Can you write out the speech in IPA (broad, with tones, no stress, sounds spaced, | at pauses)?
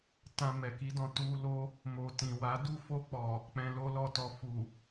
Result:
t ã˧ m ɛ˨ k i˨˦ d ɔ̃˧ t u˧ l o˦ | m o˨ t ĩ˨ w a˨˦ d u˦˨ f o˧ k͡p ɔ˨ | k͡p ɛ̃˧ l o˦ l ɔ˦˨ t ɔ˧ f u˨